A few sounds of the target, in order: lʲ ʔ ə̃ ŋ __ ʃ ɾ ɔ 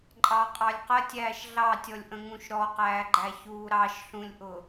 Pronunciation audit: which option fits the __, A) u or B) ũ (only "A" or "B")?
B